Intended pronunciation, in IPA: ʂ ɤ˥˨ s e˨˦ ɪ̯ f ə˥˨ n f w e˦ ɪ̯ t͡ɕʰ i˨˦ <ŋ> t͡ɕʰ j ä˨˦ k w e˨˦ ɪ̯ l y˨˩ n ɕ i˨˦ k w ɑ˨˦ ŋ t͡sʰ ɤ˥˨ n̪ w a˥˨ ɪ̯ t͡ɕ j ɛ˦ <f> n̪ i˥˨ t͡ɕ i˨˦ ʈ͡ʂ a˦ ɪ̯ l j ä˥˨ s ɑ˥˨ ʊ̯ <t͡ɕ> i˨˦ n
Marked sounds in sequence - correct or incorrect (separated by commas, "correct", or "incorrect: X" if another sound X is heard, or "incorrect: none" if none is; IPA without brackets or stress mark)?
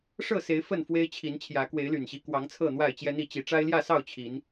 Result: incorrect: n, incorrect: none, incorrect: t͡ɕʰ